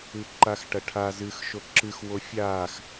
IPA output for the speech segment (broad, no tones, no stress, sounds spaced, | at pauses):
ɨ ǃ a x ʈ ɐ ʈʰ a z ɨ x ʃ o ǁ ɨ x w o fʲ a x